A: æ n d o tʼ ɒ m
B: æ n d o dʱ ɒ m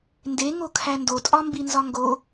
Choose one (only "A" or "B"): A